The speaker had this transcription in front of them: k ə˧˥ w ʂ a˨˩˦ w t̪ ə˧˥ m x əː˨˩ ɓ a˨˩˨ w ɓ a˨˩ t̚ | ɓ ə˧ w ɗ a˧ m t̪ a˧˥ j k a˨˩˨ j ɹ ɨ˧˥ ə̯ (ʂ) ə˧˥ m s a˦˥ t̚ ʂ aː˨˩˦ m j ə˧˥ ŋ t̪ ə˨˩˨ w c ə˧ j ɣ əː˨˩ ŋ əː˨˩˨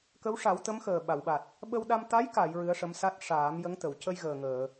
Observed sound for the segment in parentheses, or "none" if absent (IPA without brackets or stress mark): ʂ